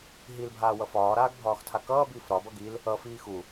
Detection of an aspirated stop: present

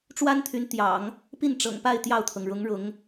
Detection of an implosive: absent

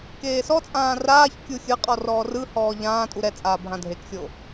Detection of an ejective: present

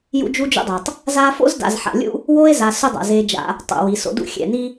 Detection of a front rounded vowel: present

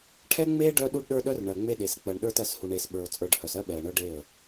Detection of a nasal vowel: absent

